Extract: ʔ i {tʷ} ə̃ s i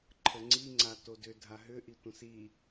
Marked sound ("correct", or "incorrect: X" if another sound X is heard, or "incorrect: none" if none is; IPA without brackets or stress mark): correct